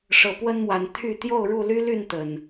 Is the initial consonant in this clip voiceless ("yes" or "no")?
yes